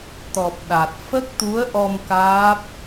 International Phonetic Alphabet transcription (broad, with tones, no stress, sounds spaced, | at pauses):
t̪ ɔ˨˩ p̚ ɗ a˨˩ t̚ f ə˦˥ k̚ t̪ u˧˥ ə̯ ʔ ɔ˧ m k aː˦˥ p̚